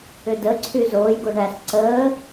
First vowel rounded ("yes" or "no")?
yes